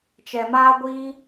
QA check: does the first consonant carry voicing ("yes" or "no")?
no